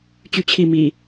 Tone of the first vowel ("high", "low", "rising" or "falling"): falling